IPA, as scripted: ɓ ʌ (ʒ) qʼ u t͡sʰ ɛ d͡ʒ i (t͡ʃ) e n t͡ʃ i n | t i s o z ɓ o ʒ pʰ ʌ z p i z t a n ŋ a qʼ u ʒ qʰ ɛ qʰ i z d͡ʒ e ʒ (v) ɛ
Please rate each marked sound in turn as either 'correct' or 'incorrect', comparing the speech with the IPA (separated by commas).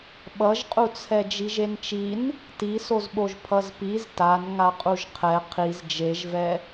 correct, incorrect, correct